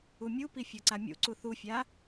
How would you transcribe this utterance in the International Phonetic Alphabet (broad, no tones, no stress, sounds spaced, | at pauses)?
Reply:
u mʲ u p i fʲ ɤ ǀ a mʲ ṵ ǀ u θ u fʲ a